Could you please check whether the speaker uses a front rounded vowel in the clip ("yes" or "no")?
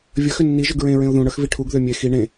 yes